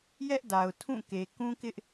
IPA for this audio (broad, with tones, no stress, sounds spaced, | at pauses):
j ɛ˦ ʔ d a˨ ʊ̯ tʰ ũ˦˨ k e˨ k ũ˦ k ɪ˦ ʔ